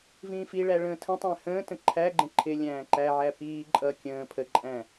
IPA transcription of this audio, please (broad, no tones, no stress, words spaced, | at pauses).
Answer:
vĩːfiɭæ ɭə̃ːtʰə̃tˤæ̃ hə̃ː tə̃ǃʰæɡ͡ǃə̃ ǃʰɪlʲæ̃ː ǃæʕæ piː ǃʼʌ kʲə̃ː pʰəǃʼæ̃